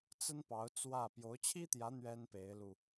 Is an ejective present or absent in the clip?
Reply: absent